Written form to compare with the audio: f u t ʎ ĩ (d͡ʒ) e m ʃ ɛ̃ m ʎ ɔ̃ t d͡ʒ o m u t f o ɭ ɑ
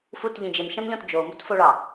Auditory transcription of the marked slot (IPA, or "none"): d͡ʒ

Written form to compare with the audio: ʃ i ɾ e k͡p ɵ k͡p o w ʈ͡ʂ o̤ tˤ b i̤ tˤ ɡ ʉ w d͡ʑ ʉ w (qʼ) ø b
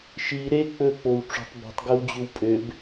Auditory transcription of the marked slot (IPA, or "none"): pʼ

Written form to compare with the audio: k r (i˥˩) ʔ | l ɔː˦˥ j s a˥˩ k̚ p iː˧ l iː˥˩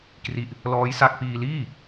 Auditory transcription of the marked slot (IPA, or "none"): i˥˩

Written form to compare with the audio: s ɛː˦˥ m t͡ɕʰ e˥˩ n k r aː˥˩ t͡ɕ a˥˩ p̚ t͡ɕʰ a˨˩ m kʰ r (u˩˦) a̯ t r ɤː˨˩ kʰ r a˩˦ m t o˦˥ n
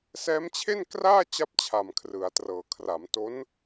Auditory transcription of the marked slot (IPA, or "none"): ɯ˩˦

